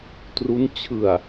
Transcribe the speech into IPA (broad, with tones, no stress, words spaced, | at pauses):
tru˦˥n t͡ɕʰɯ˨˩a̯